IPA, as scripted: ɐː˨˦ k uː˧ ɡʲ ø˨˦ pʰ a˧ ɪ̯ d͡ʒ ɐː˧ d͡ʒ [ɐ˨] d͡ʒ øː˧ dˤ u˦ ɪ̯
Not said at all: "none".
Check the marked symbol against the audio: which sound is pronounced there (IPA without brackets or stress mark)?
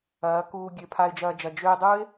ɐ˨